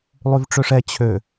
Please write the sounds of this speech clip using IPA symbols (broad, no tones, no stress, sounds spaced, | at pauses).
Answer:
lˠ y v ʈ͡ʂ ø ʂ ɛ t͡ɕʰ ø